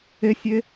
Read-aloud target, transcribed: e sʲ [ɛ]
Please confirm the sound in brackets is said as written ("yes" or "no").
no